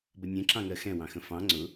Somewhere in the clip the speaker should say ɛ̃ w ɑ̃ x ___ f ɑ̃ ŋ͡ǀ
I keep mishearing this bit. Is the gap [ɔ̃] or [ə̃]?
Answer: ə̃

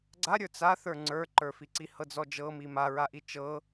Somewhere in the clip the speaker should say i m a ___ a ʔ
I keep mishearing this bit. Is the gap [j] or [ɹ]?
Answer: ɹ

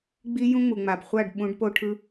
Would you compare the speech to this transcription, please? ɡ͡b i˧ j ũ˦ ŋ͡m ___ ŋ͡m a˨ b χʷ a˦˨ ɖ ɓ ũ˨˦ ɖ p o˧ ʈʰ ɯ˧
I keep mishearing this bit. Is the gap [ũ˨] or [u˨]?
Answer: u˨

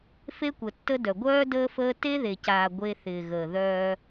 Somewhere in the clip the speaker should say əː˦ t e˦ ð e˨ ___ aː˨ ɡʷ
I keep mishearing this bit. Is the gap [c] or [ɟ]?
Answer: c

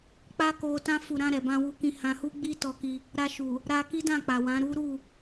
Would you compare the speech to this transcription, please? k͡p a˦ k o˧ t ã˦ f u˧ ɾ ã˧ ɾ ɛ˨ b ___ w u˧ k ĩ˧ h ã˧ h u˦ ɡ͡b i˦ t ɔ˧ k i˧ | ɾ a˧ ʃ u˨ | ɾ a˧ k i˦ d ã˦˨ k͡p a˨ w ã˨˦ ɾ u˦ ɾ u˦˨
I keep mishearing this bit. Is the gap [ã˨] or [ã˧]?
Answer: ã˧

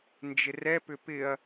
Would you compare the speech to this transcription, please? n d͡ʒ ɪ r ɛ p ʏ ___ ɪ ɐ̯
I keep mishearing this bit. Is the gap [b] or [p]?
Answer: p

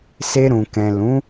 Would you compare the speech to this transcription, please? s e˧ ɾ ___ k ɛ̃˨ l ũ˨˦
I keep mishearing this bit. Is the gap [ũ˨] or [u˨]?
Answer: ũ˨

